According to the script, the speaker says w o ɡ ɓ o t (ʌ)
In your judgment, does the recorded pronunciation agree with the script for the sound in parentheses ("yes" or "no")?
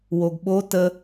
no